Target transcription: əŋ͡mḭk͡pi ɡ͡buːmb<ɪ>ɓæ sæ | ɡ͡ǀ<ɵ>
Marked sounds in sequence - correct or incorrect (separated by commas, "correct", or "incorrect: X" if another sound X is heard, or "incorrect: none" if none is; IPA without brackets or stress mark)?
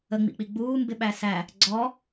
correct, incorrect: ɔ